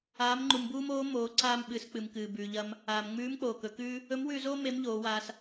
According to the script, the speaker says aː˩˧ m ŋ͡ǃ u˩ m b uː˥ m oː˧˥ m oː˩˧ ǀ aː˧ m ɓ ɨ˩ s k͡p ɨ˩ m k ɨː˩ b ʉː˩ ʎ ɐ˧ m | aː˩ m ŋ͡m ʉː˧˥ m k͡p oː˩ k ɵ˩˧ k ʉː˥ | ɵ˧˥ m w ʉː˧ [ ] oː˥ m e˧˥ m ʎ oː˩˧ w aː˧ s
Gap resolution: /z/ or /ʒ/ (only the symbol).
z